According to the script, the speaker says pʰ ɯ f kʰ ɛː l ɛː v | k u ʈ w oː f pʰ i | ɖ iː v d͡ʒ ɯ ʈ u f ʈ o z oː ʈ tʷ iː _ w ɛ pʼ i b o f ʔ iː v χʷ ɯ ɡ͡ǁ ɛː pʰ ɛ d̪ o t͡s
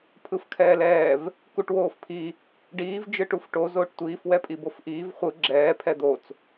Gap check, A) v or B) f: B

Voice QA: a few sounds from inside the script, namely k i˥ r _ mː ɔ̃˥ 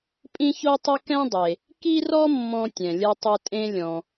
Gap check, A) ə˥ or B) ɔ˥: B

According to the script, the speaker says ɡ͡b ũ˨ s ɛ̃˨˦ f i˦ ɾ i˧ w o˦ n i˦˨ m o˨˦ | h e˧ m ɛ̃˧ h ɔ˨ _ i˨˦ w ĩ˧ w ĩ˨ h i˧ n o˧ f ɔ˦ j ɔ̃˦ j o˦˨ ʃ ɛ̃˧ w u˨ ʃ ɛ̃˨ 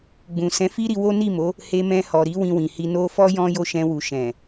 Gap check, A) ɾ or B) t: A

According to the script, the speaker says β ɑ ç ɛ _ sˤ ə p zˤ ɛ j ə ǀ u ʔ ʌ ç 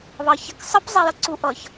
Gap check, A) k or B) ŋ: A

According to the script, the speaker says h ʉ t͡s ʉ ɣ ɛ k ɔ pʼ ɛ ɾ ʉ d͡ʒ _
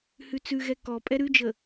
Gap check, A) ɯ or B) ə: B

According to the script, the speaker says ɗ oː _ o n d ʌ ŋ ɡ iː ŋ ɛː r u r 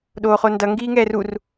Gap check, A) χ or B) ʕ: A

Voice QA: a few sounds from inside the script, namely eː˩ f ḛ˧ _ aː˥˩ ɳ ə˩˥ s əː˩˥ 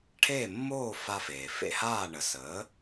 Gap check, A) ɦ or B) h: B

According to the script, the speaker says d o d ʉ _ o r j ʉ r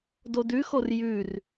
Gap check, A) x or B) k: A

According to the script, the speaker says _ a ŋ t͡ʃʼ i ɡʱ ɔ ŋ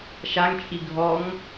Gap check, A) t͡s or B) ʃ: B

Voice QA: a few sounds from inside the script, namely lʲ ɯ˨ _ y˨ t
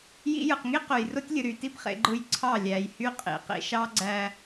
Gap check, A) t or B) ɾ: B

